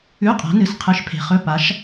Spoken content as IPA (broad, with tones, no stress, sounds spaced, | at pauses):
ʉ˧˥˧ qʼ a̤˨˥ n ɨ˨ s qʰ ɨ˨˥ ʃ pʰ e̤˨ χ ɵ˧˥˧ p a˨˥ ʃ